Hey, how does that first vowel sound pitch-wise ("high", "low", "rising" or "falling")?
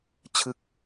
falling